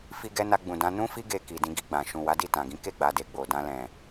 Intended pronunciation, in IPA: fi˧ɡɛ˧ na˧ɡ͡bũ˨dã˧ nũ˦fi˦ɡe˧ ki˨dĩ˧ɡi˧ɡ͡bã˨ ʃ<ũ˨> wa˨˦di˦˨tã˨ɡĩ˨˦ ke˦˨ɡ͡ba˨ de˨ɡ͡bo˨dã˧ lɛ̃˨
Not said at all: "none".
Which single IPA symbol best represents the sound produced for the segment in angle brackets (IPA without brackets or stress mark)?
ũ˨